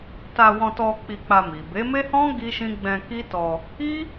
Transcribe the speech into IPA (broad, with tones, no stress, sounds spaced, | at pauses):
t a˧ w ɔ̃˧ t ɔ˧ k͡p i˧ k͡p a˧ m i˨ b e˨˦ m e˦ h ɔ̃˦ ɡ i˦ ʃ ĩ˦ ɡ͡b ɛ̃˧ k i˦ t ɔ˧ | i˦